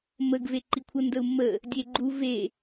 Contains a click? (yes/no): yes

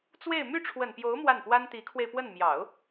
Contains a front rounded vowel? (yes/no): yes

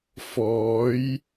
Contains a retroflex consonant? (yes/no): no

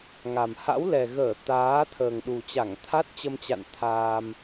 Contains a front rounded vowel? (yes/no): no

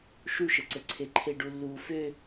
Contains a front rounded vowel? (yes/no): yes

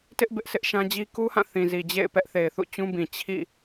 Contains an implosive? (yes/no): no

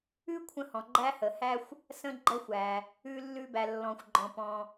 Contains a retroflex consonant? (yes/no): no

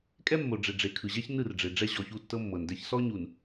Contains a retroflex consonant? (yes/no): yes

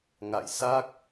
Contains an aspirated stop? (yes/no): no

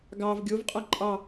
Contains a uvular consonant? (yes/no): yes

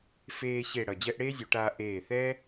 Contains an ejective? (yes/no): no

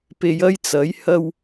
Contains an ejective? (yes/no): no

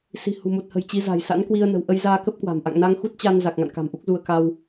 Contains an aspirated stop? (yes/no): no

